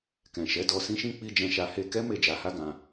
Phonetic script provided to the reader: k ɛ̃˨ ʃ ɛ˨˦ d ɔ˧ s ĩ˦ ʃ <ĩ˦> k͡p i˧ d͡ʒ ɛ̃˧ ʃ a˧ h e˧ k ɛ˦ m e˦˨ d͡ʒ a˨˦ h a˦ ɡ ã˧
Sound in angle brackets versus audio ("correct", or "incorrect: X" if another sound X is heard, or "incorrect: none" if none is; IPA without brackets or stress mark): correct